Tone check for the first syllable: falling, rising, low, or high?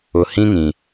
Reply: low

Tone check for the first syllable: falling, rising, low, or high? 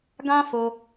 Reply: high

